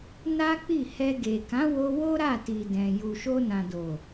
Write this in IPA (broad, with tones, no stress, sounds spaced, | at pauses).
n a˦ k͡p i˦˨ h ɛ˧ ɡ e˨ k ã˨˦ w o˧ w o˦ ɾ a˦˨ t i˨ d ɛ̃˨ j u˨ ʃ o˧ n ã˨ d o˨